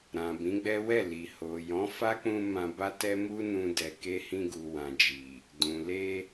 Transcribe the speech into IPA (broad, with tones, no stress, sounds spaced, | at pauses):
ɾ ã˨ b ĩ˨˦ ɡ͡b ɛ˦ w ɛ˦˨ l i˨ h o˨ j ɔ̃˨˦ f a˦ k͡p ũ˧ m ã˧ b a˦ t ɛ˦ m u˦ n ũ˧ d ɛ˨ k e˧ h ĩ˧ ɡ u˨ w ã˨ d͡ʒ i˨ | d ũ˨ l e˧